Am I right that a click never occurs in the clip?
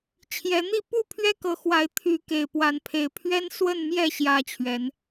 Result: yes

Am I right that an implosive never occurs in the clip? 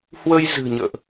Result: yes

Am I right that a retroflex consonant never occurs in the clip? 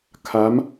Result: yes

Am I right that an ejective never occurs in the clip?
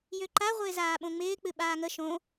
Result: yes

